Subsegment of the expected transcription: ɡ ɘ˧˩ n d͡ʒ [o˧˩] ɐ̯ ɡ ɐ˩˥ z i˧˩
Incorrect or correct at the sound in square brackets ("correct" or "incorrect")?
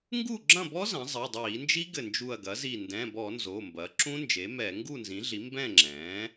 incorrect